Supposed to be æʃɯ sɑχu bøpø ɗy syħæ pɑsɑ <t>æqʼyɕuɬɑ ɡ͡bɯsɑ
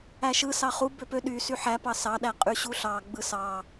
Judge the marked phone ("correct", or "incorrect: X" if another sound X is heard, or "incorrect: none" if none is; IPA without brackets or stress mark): incorrect: ɗ